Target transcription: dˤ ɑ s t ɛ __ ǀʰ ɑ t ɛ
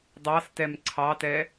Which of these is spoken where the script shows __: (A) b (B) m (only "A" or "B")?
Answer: B